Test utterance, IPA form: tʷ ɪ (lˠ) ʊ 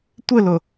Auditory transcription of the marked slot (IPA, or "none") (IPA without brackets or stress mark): l